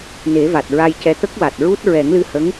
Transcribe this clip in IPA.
n e˨˩˦ v a˨˩ t̚ ɹ a˧ j c ɛ˧ t̪ ə˦˥ k̚ w a˨˩ t̚ ɹ u˦˥ t̚ ɹ ɛ˨˩˦ ŋ l ɨ˧ h ə˧˥ ŋ

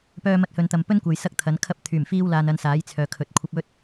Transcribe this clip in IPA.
p œː˧ m ɐ˧ t̚ h ɵ˨ n t̪ ɐ˨ m p ɵ˥ n kʷ ɐ˨ j s ɐ˥ k̚ t̪ʰ ɐ˨˥ n kʰ ɐ˧ p̚ t̪ʰ yː˨˩ m f iː˧ w l aː˨ n ɐ˧ n s aː˨˥ j t͡sʰ œː˨ kʰ ɵ˨˥ t̚ kʷʰ ɐ˧ p̚ ɵ˥ t̚

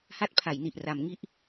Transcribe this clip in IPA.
h a˦˥ t̚ pʰ a˩˦ j n i˨˩ ʔ r a˩˦ m ŋ i˦˥ ʔ

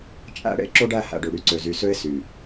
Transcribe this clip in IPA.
t͡ʃʼ æ̰˦ ɽ ḛ˦ ǁ o˦ ɖ æ˦˨ h æ̰˨ ɖ ø˨ ɽ y˦ ǀ ø˨ z y˨ s ø˦ ɪ̯ s y˨

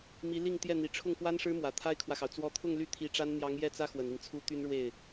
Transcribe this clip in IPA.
m i˧˥ l i˥˧ ŋ t̪ j ɛ˥˩ n̪ i˨˩ ʈ͡ʂʰ ʊ˥˩ ŋ f w a˥ n ʂ ɻ̩˥ m w ä˨˩ t̪ʰ a˥ ɪ̯ kʰ w ä˨ x ɑ˩ ʊ̯ t͡s w ɔ˧˥ t̪ʰ ʊ˥˧ ŋ l y˥˩ t̪ʰ i˧˥ ʈ͡ʂ a˥ n n̪ j ɑ˧˥ ŋ j ɛ˥˩ t͡s ä˥ x w ə˨˩ n i˦ ŋ t͡sʰ u˥ t̪ y˥ n ɻ w e˥˩ ɪ̯

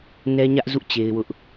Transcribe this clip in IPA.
n ɛ˦ ɲ ä˦ ʔ z ṵ˦˨ t͡ɕ e˦ ɪ̯ w ʊ˦ ʔ

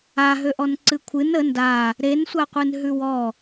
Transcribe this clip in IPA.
a ɦ ø ʔ ɔ n ǀ ɨ kʷʰ ɨ n ə n d a | ɾ e n sʷ a qʷ ɨ n ɦ ʉ w ɔ

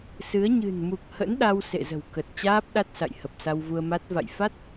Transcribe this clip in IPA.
s ɨ˨˦ ə̯ ɲ ɨ̤˨˩ n m u˨˩ k̚ h ə̰˧˥ n ɗ a˧ w s ḛ˧˨ z ə̤˨˩ w k ə˨˩ t̚ t͡ɕ aː˦˥ p̚ ɗ a˦˥ t̚ s a̰˧˨ j h ə˨˩ p̚ s a˧ w v u˧ ə̯ m a˦˥ t̚ v a̰˧˨ j f a˦˥ t̚

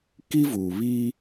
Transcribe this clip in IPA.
k i˦ v uː˨ β iː˦

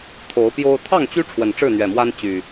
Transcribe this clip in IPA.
t̪ʰ o˨˦ ʊ̯ p j o˦ ʊ̯ t̪ʰ ɑ˥˨ ŋ t͡ɕ y˦ ʈ͡ʂʰ w ə˨˩ n ʈ͡ʂ ɻ̩˥˨ n̪ ɥ ɛ˨˩ m w a˦ n t͡ɕ y˨˩

